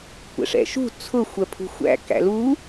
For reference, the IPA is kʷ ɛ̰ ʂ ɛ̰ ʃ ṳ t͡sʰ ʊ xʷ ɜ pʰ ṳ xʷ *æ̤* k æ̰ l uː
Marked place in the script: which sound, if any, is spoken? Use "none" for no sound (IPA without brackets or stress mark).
æ̰